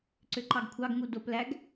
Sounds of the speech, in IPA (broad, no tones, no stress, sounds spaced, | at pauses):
ǀ ø ǃ ɑ ɡ kʷʰ ɑ ɡ ŋ u d o p l æ ɡ